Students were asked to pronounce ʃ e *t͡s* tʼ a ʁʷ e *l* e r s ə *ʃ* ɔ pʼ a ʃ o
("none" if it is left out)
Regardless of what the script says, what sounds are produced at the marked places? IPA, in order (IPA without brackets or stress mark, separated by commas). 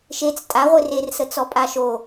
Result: t͡s, r, t͡s